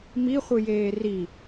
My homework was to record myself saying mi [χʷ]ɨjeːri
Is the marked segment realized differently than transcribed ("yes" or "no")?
no